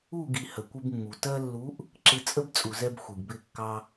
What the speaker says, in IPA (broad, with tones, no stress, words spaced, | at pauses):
u˦˨ɡi˨ hə˨kʷɪ˧bmːu˨ tɜ˧lːu˨˦ʔ | ǁɪ˧t͡sʼə˦bt͡sʼu˨zɛ˧b xʷi˨ɡbɪ˦˨kːɑ˦